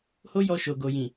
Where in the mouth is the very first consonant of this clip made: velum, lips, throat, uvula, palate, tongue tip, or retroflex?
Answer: throat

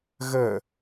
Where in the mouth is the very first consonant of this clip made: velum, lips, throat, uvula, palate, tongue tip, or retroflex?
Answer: velum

